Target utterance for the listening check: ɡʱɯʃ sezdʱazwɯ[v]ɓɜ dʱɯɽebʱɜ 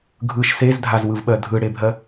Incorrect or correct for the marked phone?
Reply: correct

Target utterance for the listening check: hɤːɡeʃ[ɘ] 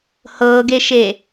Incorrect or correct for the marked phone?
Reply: incorrect: e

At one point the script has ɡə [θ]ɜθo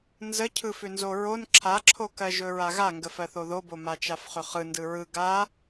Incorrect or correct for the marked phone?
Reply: incorrect: f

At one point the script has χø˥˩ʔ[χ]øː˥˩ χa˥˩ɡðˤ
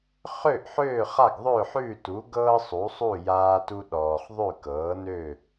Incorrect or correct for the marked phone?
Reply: incorrect: ħ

